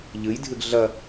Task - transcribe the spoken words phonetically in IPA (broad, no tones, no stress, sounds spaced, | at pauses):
ʎ ɨ j dʱ ɨ ɡ ɮ ɐ